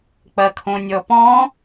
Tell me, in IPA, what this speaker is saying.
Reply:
k͡pɐkʰõnʲɔpɔ̃

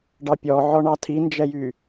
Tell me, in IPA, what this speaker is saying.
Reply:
ɖɑpʲɔʕɔɳɑ tʰind͡ʒɛjy

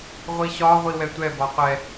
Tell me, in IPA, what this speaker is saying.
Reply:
ʁʷiɕɒʁʷi wɛtʷɛbɒ qʷɛ

